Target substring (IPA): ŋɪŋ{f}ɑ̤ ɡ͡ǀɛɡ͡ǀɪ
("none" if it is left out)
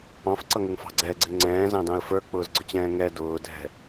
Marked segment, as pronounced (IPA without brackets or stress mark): f